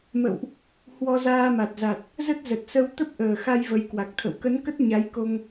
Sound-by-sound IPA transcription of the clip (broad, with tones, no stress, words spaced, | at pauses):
mə̰˧˨wʔ | hwɔ˧zaː˧ma˨˩t̚za˨˩t̚ | zə˦˥t̚zə˨˩t̚sə˧wt̪ə˦˥p̚ ʔəː˨˩xa˧j və˨˦jkwa˨˩k̚t̪ʰə̰˧˨w kə˨˦nkə˦˥t̚ ɲa˨˦jko˧ŋ